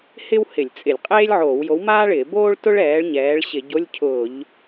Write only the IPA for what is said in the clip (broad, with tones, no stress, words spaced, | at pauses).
hɪ˥whɪ˧˩˧lʲt͡sʼɪ˧˩˧lʲqʼeː˥lʲ ʕoː˧˩˧wjo˨˥wmaː˥ɭɪː˧˩˧ boː˥ɭtʊ˥ɭ ɛː˨˥ɭɲɛː˨˥ɭ ɕɪ˧˩˧ɟo˧˥˧lʲcʰʊː˧˩˧ʎ